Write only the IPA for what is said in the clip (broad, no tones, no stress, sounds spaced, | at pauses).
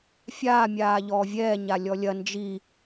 fʲ aː mʲ aː ʎ ɔː vʲ ɛː ɲ a lʲ ɔ lʲ ɐ n d͡ʒ i